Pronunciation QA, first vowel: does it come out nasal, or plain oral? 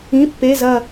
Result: nasal